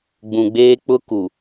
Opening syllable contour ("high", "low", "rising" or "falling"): low